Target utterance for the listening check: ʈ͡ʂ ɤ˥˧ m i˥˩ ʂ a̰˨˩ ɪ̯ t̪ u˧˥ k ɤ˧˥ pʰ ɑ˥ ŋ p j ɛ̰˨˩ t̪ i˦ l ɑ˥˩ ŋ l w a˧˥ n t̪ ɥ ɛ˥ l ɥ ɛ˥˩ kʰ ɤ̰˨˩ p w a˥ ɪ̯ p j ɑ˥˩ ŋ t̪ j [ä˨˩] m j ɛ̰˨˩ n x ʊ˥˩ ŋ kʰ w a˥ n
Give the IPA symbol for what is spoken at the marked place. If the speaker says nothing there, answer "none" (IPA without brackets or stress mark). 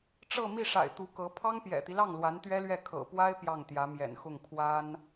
ä˧˥